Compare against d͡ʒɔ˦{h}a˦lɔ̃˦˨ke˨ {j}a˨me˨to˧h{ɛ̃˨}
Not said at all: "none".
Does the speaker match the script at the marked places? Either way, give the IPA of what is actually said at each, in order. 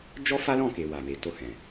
f, w, ɛ̃˨

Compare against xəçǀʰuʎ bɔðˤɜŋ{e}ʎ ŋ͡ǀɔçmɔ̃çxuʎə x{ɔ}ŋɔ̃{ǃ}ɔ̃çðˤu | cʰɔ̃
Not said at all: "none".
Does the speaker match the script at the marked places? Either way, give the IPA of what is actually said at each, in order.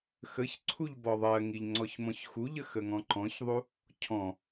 i, ə, ǃ

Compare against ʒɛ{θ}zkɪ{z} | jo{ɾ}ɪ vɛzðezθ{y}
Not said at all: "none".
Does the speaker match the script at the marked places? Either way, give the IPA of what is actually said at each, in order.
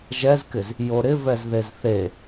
none, z, ɾ, e

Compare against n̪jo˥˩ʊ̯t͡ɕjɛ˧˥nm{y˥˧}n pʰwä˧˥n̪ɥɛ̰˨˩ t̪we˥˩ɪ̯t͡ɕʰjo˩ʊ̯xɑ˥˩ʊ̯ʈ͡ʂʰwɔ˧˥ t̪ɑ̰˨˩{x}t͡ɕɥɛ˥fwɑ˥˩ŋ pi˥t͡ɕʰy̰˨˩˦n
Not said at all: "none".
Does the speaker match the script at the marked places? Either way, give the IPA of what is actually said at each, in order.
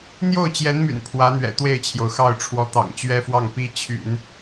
y̰˨˩, ŋ

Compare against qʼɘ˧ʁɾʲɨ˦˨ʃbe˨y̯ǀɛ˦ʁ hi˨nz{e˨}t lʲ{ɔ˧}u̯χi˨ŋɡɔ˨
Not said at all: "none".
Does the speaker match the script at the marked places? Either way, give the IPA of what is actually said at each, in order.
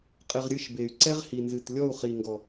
ɨ˨, ɔ˦˨

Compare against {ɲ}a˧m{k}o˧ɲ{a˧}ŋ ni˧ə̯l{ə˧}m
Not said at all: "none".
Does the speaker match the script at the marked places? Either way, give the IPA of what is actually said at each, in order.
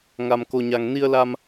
ŋ, k, a˧, a˧

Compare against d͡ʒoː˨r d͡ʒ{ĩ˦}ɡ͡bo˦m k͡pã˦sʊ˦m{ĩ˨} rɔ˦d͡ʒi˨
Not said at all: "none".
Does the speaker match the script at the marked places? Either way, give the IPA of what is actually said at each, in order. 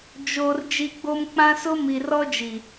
i˦, i˨

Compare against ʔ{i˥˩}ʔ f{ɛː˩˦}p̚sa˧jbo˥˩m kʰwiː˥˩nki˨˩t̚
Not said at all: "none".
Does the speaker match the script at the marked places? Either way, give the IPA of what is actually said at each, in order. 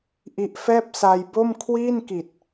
i˦˥, ɛː˥˩

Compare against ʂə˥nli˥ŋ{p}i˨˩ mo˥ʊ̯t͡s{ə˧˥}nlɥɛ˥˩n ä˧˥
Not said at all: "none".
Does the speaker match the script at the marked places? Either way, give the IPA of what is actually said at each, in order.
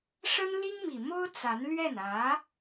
m, a˧˥

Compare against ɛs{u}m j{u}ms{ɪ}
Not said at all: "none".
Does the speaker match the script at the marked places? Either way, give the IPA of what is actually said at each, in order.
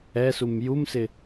u, u, ɪ

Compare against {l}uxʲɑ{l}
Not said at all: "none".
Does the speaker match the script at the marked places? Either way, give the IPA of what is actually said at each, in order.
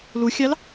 l, l

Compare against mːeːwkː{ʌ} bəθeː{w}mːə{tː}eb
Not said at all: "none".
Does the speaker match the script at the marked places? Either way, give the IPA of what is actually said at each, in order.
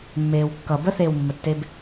ʌ, w, tː

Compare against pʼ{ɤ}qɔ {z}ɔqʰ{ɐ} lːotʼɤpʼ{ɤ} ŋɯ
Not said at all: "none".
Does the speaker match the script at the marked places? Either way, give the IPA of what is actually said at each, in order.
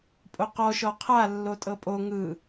o, ʃ, a, o

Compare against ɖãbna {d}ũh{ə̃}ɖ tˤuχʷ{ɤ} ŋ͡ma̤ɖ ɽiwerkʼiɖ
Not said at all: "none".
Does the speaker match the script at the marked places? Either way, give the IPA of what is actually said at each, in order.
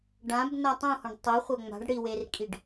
tˤ, ɔ̃, ɤ

